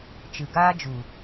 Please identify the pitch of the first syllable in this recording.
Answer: low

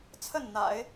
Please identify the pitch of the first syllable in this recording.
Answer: falling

